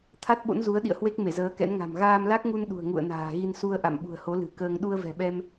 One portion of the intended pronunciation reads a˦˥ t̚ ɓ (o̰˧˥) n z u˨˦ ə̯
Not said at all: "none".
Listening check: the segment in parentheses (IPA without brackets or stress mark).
o̰˧˥